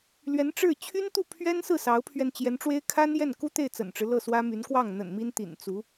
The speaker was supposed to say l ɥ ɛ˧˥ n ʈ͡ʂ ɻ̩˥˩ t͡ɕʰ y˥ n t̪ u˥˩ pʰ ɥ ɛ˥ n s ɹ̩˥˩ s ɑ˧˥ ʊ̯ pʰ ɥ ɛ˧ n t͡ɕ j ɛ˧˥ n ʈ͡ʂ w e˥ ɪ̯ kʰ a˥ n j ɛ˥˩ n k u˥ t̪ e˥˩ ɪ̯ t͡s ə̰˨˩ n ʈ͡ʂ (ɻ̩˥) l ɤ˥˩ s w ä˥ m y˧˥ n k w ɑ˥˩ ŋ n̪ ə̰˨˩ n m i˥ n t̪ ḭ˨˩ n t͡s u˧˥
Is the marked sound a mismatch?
yes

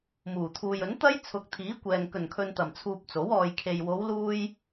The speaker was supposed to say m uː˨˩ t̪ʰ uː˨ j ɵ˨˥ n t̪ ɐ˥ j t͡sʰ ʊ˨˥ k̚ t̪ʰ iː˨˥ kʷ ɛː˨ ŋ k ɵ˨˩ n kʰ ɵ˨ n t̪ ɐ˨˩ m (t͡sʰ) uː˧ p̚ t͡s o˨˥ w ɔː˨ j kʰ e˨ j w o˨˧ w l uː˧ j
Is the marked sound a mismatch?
no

